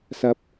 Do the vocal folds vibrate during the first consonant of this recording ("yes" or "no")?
no